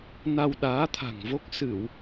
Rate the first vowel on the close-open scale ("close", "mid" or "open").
open